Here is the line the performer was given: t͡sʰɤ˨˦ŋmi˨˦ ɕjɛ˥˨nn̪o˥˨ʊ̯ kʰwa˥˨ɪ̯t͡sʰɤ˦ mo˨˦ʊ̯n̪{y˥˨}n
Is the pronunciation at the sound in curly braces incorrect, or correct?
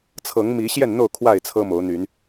incorrect